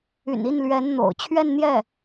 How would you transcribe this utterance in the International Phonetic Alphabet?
y̰˨˩ n i˥˩ n l ɥ ɛ˧˥ n n̪ o̰˨˩ ʊ̯ t͡ɕʰ ɥ ɛ˥˧ n n̪ j ɛ˥˩

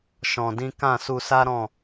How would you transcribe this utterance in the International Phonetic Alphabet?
ʃ ɔ̃˧ d ĩ˦ k ã˦˨ s u˧ s a˦ ɾ ɔ̃˦˨

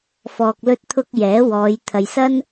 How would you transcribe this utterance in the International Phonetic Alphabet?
f ɔː˨ k̚ l ɵ˧ t̚ t̪ʰ ʊ˧ k̚ j ɛː˨˥ w ɔː˨˧ j t̪ʰ ɐ˨ j s ɐ˥ n

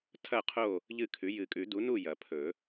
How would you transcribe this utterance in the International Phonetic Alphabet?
tʰ ɐ˥˨ qʰ o˥˨ | ʎ ɨ˥˨ kʰ ʉ˨˥ j ɨ˨˩˦ kʼ ʉ˨˩˦ d u˨˥ n u˥˨ j ɐ˨˩˦ pʰ ɵ˨˩˦

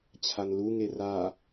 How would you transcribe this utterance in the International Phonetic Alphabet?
t͡ɕʰ a n l u ŋ e r a

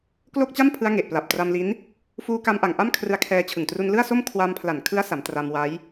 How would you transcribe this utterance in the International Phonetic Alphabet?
k l o˥˩ k̚ t͡ɕ a˥˩ m pʰ ɯ˦˥ a̯ ŋ e˨˩ ʔ p l a˨˩ p̚ t r a˧ m l i˦˥ n | f uː˧ k a˧ m ʔ a˨˩ ŋ ʔ a˥˩ m kʰ r ɯ˧ a̯ kʰ ɛː˧ t͡ɕʰ ɯ˨˩ ŋ t r u˧ n l ɯ˥˩ a̯ s o˥˩ m kʰ w a˧ m pʰ l a˨˩ n kʰ ɯ˦˥ a̯ s a˩˦ m t r a˧ m w a˦˥ j

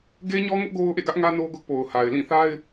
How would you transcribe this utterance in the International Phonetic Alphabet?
ɡ e˦ ɲ ɔ˦ ŋ ʊ˦ ʔ ɡ o˦ ʊ̯ ʔ ḛ˦˨ ɡ ä˦ ʔ ŋ ä˦ n o˦ ɡ ʊ˦ ʔ p o˨ ʊ̯ h a˨ ɪ̯ l ĩ˦˨ θ a˦ ɪ̯

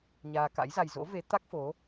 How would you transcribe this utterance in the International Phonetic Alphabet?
ɲ aː˧ k a̰˧˥ j z a˧ j z o̰˧˥ v e˨˦ t̪ a˦˥ k̚ f o˨˦

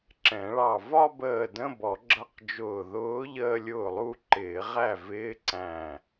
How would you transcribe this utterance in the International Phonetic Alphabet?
ǁ ɛ̃˨˩˦ ɭ ɑ˧˩ v ɒ˥˧ b əː˧˩ d ə̃˧˥˧ b ɔ˨˩˦ ɡ͡ǁ ʌ˧˥˧ q d͡ʒ ʊː˧˩ ð ʊː˧˥ ʎ əː˥˧ lʲ ʊː˥˩ lˠ u˥˧ ǃ ɪː˨˩˦ ʁ æ˥˩ v ɪː˧˥˧ ǀ æ̃˧˩

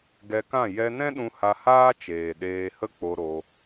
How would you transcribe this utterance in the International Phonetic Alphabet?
ɡ ɛ˧ k ã˦˨ j ɛ˧ n ɛ̃˦ ɗ ũ˧ h a˧ h aː˦ t͡ʃ eː˨ ɗ eː˧ h ə˦ k͡p o˧ ɾ o˧

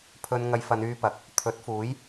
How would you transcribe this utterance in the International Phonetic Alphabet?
pʰ ɵ˧ n ŋ ɐ˧ j f ɐ˨˧ n yː˧ p ɐ˨˥ k̚ | t̪ʰ ɵ˨˥ t̚ f uː˨˥ j

